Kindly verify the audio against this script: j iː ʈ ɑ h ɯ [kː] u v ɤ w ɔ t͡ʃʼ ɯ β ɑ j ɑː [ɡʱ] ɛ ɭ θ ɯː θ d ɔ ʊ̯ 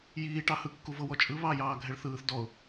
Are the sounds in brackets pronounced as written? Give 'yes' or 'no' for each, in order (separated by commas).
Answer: yes, yes